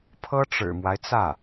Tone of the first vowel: high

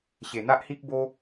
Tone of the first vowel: low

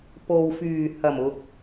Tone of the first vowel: low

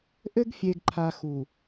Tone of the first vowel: high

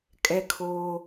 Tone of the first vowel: high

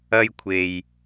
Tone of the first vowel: high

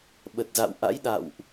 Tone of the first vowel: low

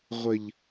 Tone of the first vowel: low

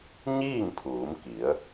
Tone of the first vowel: falling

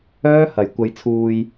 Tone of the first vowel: high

